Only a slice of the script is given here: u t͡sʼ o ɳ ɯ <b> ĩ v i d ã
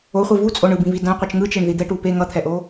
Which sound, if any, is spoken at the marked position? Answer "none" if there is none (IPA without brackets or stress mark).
b